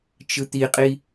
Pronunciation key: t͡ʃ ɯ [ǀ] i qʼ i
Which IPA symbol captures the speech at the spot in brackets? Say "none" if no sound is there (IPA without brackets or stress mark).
t̪